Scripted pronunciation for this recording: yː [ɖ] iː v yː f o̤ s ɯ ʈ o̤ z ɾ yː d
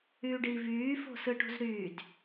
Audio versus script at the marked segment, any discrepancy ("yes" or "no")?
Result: no